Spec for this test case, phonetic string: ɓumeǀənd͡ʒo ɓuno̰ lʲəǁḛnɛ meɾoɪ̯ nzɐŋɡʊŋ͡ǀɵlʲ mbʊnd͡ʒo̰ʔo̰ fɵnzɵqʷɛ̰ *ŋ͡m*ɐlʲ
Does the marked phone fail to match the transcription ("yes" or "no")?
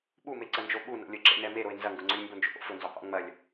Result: no